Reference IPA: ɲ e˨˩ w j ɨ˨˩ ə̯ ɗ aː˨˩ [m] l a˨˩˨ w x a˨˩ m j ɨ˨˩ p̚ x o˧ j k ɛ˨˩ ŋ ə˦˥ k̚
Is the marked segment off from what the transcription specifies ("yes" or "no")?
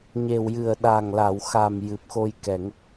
yes